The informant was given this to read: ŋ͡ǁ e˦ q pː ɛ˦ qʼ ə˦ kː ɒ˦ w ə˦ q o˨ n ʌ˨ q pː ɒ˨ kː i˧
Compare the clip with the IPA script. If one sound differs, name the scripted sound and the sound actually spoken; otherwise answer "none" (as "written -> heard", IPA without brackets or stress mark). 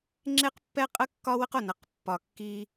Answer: none